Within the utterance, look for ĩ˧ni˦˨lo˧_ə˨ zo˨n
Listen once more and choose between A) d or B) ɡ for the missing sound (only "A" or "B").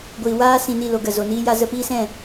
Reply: B